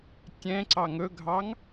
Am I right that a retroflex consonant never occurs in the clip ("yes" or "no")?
yes